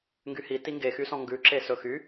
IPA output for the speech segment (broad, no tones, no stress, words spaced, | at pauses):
ŋɡyhi tiŋɡexysɔ̃ ŋɡʉǁe sɵxy